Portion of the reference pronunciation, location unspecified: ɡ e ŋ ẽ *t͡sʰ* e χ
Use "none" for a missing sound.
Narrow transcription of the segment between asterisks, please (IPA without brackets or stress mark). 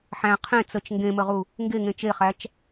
t͡ʃ